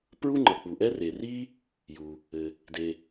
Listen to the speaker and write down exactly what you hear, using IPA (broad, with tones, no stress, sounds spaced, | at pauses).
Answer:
p ɹ u˦ ŋ͡ǃ ʌ˩ k͡p u˩ ʔ ɛ˦ r e˩ r i˦ | j u˩ | ɘ˩ | d e˩